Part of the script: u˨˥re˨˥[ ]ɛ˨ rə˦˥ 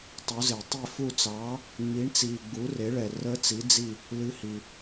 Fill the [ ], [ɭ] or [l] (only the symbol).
ɭ